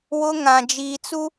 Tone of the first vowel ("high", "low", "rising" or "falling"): high